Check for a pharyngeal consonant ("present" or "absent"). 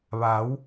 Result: absent